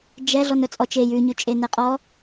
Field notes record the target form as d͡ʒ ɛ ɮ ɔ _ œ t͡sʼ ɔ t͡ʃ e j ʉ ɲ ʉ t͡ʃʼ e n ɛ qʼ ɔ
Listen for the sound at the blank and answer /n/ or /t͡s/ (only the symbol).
n